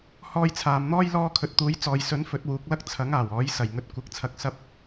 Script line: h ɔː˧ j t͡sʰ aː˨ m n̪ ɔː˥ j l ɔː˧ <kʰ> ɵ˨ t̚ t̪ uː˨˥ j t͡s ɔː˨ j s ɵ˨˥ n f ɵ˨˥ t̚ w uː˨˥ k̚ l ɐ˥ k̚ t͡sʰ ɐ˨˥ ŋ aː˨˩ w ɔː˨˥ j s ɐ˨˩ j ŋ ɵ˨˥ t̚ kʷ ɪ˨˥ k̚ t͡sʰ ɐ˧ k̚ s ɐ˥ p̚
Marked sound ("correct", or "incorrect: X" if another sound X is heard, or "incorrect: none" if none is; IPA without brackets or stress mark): correct